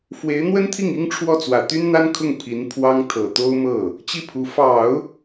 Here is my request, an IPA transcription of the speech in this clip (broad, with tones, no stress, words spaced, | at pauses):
fwe˧˥ɪ̯n̪wə˥nt̪ʰi˥˩ŋ i˥ŋʈ͡ʂʰwɔ˥˩ t͡swä˨˩t̪y˥nn̪a˥nkʰʊ˥˩ŋ pʰi˧˥n pʰwɑ˥ŋ t̪ʰɤ˨˩t̪o˥ʊ̯ mɤ˥˩ | t͡ɕi˥˩pʰu˧˥ fɑ˨˩˦ʊ̯